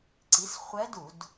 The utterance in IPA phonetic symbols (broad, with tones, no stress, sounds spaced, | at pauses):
ǀ i˩˥ s χʷ ɛ˧˥ d u˧˩˧ d